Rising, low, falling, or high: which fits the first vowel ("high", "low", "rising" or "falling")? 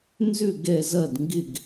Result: falling